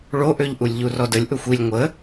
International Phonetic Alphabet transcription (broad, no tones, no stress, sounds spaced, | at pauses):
ɭ o ʔ ø ʎ ʔ u lʲ ʎ u r ɔ d ə lʲ ʔ ʊ xʷ i lʲ ŋʷ ə